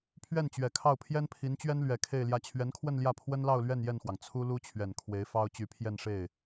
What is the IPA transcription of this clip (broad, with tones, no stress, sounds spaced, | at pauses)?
pʰ ɥ ɛ˥˩ n t͡ɕ ɥ ɛ˨˩ kʰ ɑ˥˩ ʊ̯ pʰ j ɛ˥ n pʰ i˧˥ n t͡ɕ ɥ ɛ˥ n l ɥ ɛ˧˥ kʰ e˥˧ ɪ̯ l j ä˥˩ t͡ɕʰ ɥ ɛ˧˥ n kʰ w ə˥˧ n l j ä˥˩ pʰ w ə˥ n l ɑ˥˧ ʊ̯ l ɥ ɛ˥˧ n j ɛ˥˩ n x w ɑ˩ ŋ t͡sʰ u˥ l u˥ t͡ɕʰ ɥ ɛ˨˩ n kʰ w e˧˥ ɪ̯ f ɑ˥ ʊ̯ t͡ɕ y˧˥ pʰ j ɛ˥˧ n ʂ e˥˩ ɪ̯